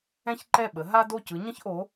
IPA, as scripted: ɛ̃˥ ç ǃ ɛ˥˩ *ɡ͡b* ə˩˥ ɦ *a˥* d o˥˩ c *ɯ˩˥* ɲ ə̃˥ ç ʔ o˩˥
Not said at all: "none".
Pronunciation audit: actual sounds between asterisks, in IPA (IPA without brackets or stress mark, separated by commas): ɓ, a˥, ɯ˩˥